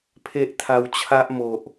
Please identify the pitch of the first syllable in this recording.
high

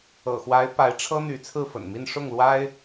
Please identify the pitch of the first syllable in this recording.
low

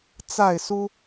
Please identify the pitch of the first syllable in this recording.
falling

